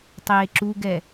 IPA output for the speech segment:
tˤ eː ǁ u ɡ ɛ

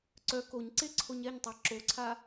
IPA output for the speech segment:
ǀ œ k o ɲ ǀ e ǀʰ o ɲ ɛ ɲ tˤ a ǁ o ǀʰ a

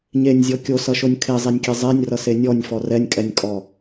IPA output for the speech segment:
ɲ e nʲ zʲ ɔ kʲ o s ʌ ʃ o nʲ kʰ e zˤ e nʲ kʲ e zˤ e nʲ r ʌ s e nʲ ɔ nʲ f ɔ r ɛ nʲ kʼ ɛ nʲ kʼ ɔ

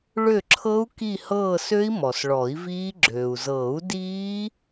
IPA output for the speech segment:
ɭ ø˦˨ ǁʰ ɤ˦˥ u̯ k i˦˨ h ɤː˦˨ s ø˦˥ i̯ m ɔ˩ s ɭ ɔ˨˩˦ i̯ v iː˦˥ ɡ͡ǁ øː˩ u̯ z ɤː˨˩˦ u̯ d iː˦˥

